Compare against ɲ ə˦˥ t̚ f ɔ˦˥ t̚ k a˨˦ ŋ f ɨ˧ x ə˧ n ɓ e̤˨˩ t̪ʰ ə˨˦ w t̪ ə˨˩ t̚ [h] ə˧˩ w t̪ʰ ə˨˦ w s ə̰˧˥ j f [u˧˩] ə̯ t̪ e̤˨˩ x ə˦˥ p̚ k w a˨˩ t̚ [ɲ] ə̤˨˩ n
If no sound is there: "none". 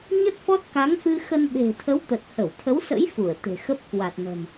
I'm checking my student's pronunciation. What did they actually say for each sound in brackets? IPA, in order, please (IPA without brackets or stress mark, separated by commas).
h, u˧˩, n